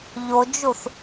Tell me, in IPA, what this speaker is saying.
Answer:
ʎ o d͡ʒ u θ

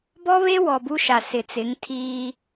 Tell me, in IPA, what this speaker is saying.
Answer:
b ɔ˦ β e˦ w ɔ˨ b u˦ ʃ a˨ s ɪ˨ t͡s ɪ˨˦ ŋ tʰ iː˦

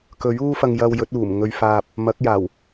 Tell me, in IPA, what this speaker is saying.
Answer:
k ɵ˨˥ ɥ uː˥ f ɐ˧ ŋ j ɐ˧ w j ɵ˨˥ t̚ uː˨˩ m ŋ ɵ˧ ɥ f aː˧ p̚ | m ɐ˨˥ k̚ j aː˨˩ w

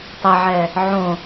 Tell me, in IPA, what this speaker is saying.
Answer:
tˤ ɛ ʕ ɛ | ʕ õ

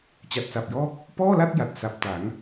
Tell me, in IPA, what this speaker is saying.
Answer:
t͡ɕ a˨˩ t̚ s a˨˩ p̚ j ɔː˦˥ k̚ | p ɔː˥˩ l a˥˩ t̚ j a˨˩ t̚ s a˨˩ p̚ t a˩˦ ŋ

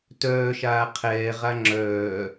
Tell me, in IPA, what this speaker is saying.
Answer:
t œː ʃ aː qʰ ɛː ʁ a ŋ͡ǁ œː

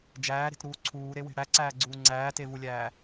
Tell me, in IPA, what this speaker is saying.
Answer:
d͡ʒ æː ɾ e̤ t ɾ uː ǀʰ uː ɾ e w e̤ ɽ æ ǀ æː ɡ͡ǀ uː ŋ͡ǀ æː t e v u lʲ æː

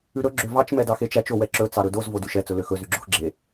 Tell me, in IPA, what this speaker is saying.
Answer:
ʉ ɾ ɵ ɡ͡ǁ ø v ɑ t͡ʃ m ɛ d ɑ x e t͡ʃ æ t͡ʃ o w ɛ ǁ ɵ t͡s ɑ ɾ ɵ d o z v o d y ʃ ɛ t͡s ɵ l ø x ɵ z y ɡ͡ǁ o x ɡ͡ǁ e

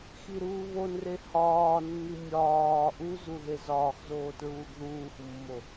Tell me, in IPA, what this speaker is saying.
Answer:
x i ɾ uː β o n r e h ɒː nː i mʲ ɒː ʔ u z u ð e z ɒː x z oː t ɹ uː ɡ ð uː x mː o

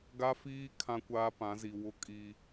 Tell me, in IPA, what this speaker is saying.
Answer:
ɡ a˦ f iː˦ kʰ ã˦ kʷ aː˦ p ã˨˦ z i˨ w ʊ˦ kʼ i˦

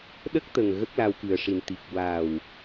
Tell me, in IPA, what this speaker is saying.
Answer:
ɗ ə˦˥ k̚ t̪ ə˨˩ ŋ ɣ ə˦˥ k̚ l a˧ w k ɨ˨˩ ə̯ ʂ i˨˩ n t̪ i˨˩ k̚ w a˨˩ w

